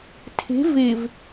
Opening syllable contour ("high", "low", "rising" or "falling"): rising